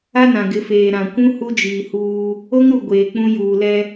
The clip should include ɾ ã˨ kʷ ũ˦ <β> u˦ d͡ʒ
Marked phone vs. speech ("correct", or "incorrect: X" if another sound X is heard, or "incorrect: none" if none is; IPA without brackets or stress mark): incorrect: h